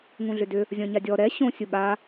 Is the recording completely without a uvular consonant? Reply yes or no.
yes